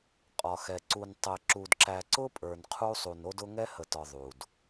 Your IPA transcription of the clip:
qʼ ɒ˨ x ɛ˨ ǀ u˨ n tˤ ɛ˨ ǁ u˨ d ǁ æ˨ ǀ ʊ˦ pʼ ə˞˨ n qʰ u˦ sˤ u˨ n o˦ d ʊ˦ ŋ ɛ˦ h ə˨ t ɒ˨ ðˤ u˨ d

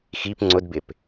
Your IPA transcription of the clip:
x i p ŋ͡ǀ ʊ d b ɪ p

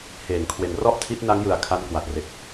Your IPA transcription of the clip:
h eː˩˦ ŋ kʰ w e˨˩ n r ɔ˥˩ ʔ tʰ i˦˥ t̚ n a˦˥ ŋ j ɯ˨˩ a̯ kʰ a˦˥ n k w a˨˩ t̚ r e˨˩ k̚

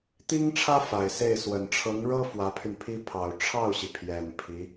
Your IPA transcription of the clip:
t̪ i˥ ŋ ʈ͡ʂʰ ä˥ f a˨˩ ɪ̯ s e˥˩ ɪ̯ s w ə˨˩ n ʈ͡ʂʰ ɤ˧˥ ŋ ɻ ɤ˥ f w ä˧˥ pʰ y˧ n pʰ i˥ pʰ ɑ˨˩ ʊ̯ ʈ͡ʂʰ ɑ˥˩ ʊ̯ ɕ i˩ pʰ j ɛ˨˩ n pʰ i˧˥

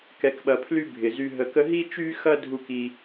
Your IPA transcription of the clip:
k ɛ˧ k ɓ ɐ˧ pʰ l y˦ bʱ ɪ˨ z y˧ ɦ ə˧ k ə˦ ɦ i˦ t͡ʃ y˦ x ɐ˦ dʱ u˦ k i˦

